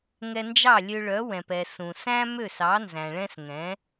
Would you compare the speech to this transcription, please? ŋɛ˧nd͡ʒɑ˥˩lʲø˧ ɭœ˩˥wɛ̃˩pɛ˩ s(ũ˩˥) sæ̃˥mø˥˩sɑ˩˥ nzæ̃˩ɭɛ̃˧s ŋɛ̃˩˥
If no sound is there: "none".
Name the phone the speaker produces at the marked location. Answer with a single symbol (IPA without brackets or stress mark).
ũ˩